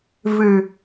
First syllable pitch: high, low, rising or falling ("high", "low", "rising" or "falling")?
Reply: low